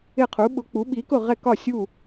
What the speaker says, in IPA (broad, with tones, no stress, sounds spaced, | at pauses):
ɪ˥˨ qʰ u˩˥ ɓ ʊ˩˥ k͡p u˩˥ ɓ i˩˥ k ʊ˥˨ ʁ ɛ˥˨ k ɒ˥˨ sʲ u˥˨